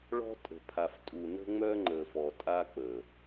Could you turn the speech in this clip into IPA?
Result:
ɭ ɔ̤˦ tʼ ə̤˨ pʰ a˨ f tʼ u˨ n ə̤˦ ŋ͡m œ˦ ŋ͡ǃ ə˨ f ɔ˨ tʼ a˦ k͡p ə˨

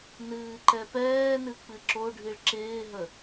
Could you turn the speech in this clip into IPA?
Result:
n ɨː ǃ ɛ p ɛː n ɨ k͡p ɨ ǁ o ɖʱ i ɭ ǁ ɪː ɦ ə

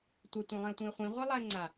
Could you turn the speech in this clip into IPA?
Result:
tʷ ɘ tʷ ɛ̃ lˠ ĩ ʊ̯ tʷ ĩ ə̯ χʷ ĩ ʁʷ i lˠ a ɪ̯ ŋ͡ǀ a

